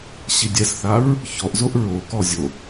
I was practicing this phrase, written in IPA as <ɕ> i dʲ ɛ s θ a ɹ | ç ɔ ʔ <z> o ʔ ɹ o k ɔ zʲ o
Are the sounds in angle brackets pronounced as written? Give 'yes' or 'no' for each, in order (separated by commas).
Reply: yes, yes